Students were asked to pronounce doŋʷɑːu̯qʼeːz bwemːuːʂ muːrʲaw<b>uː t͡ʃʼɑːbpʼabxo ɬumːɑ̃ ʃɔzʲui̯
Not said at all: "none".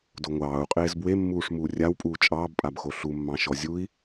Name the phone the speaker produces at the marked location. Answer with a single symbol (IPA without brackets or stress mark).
pʼ